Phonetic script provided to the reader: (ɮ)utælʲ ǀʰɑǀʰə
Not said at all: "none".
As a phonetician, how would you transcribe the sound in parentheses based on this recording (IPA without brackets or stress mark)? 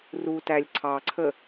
r